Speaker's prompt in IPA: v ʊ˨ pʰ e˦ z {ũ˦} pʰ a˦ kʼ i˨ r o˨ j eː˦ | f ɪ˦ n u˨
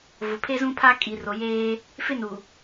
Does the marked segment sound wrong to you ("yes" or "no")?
no